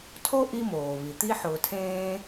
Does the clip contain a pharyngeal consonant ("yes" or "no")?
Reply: yes